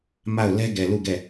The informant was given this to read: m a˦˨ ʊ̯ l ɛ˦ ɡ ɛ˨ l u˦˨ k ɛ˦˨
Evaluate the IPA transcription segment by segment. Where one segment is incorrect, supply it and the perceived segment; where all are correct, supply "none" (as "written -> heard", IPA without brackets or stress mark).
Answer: k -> ɡ